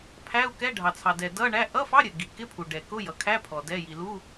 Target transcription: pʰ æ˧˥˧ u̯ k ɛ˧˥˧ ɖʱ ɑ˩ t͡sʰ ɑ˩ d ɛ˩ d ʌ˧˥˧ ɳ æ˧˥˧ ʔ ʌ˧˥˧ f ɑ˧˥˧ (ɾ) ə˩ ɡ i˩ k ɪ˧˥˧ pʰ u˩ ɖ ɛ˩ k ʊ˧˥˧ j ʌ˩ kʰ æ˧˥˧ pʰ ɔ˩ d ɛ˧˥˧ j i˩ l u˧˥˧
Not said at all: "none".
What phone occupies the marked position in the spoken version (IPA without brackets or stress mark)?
ɾʲ